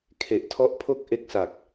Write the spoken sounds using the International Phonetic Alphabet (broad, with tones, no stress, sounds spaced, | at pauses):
kʰ e˨˩ ʔ tʰ ɔ˦˥ ʔ pʰ o˥˩ k̚ ʔ e˦˥ k̚ s a˨˩ k̚